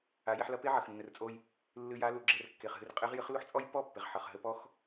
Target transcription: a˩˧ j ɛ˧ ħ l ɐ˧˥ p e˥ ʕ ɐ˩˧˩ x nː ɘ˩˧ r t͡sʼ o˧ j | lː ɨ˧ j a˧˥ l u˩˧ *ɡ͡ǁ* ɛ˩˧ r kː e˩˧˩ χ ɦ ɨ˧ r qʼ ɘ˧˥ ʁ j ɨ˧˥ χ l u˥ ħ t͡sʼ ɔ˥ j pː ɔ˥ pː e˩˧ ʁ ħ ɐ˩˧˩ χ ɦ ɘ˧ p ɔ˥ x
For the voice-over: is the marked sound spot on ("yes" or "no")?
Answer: yes